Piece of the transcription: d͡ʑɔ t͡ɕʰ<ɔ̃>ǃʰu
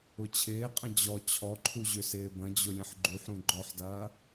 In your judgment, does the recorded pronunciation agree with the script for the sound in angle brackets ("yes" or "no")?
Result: no